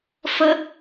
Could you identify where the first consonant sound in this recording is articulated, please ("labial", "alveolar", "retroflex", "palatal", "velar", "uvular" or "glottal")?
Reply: labial